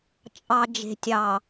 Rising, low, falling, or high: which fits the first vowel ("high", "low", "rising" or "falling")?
low